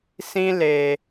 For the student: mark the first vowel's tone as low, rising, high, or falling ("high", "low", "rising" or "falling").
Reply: high